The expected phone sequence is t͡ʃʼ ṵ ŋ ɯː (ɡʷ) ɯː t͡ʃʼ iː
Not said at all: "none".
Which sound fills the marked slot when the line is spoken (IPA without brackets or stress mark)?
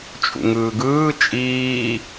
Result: ɡ